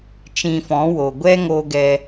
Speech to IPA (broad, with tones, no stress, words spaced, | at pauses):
t͡ʃĩ˧fɔ̃˨˦wo˨ ɡʷɛ˦ ŋo˦ɡɛ˦